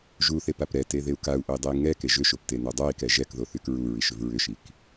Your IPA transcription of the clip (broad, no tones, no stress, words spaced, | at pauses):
ʒuθepap ɾɛteðeu̯ kau̯ʔoi̯dˤei̯ ŋɛke ʒʏʃopteno dˤoi̯kɛ ʒɛkðoθyk ɹuɹiʃʏv ɹʏʃik